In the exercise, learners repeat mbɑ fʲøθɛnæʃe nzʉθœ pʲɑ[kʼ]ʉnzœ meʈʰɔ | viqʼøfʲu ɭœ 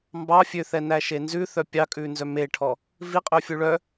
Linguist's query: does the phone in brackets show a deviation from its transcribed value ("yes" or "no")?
no